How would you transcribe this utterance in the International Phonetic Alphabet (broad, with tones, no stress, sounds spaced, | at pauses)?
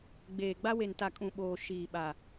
ɡ͡b eː˨ ɡ͡b a˦ w e˨ n t a˨ kʼ ũ˨ ɓ oː˨ ʃ iː˨ ɓ a˨